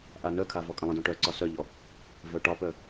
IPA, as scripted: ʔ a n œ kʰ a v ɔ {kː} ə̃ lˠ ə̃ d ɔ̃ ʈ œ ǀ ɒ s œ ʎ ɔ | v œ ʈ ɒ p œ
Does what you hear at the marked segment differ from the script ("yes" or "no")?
yes